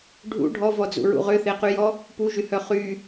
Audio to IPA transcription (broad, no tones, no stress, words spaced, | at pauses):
ɖʱṵ ɖʱɔvɔd͡zṵɹṵ ʁʏθeqyjɔ | puʒyhœ χy